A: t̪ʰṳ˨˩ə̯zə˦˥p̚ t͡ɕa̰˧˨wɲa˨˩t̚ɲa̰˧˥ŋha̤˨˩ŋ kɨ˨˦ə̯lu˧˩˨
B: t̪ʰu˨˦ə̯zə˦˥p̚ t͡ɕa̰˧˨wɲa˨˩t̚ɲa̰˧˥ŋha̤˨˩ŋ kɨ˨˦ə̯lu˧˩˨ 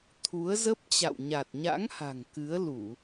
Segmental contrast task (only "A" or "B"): B